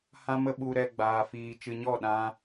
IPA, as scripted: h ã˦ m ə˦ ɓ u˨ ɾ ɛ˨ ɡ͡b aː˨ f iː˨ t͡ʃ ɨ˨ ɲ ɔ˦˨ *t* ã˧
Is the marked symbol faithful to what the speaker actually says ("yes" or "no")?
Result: no